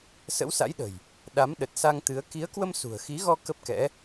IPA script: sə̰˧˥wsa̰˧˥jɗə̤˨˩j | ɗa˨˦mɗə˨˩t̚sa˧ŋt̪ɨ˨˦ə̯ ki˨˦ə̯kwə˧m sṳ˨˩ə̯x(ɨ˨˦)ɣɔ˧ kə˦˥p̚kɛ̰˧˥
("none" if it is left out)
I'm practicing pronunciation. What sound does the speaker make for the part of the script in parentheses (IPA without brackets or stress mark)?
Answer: i˨˦